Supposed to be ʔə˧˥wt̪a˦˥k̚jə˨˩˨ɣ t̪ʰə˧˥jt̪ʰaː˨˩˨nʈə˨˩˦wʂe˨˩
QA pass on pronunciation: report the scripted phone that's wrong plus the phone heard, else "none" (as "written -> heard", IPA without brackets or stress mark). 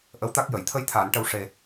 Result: ɣ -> j